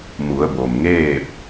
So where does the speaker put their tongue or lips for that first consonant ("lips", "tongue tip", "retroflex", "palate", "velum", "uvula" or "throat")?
lips